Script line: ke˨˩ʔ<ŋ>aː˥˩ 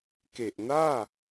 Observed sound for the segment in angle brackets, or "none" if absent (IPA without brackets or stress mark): n